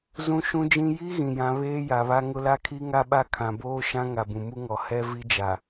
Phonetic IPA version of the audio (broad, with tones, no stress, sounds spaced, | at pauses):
z ũ˦ ʃ ũ˦ d͡ʒ ĩ˦ j i˦ ɣ ĩ˨ j ã˨˦ β eː˦ j a˨ β a˦ ŋ ʊ˦ l a˦ kʰ i˦ ŋ a˦ ɓ a˦ kʰ ã˨ b oː˦ ʃ ã˦ ŋ a˨ b ũ˨ m u˦ ŋ ɔ˨ h ɛ˦ v i˦ d͡ʒ a˨